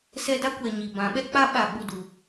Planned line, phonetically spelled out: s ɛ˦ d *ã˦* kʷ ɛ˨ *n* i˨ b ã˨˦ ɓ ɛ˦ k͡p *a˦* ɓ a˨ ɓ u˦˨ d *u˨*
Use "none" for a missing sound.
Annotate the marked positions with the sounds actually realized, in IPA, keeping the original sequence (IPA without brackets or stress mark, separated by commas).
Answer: a˦, ɲ, a˦, u˨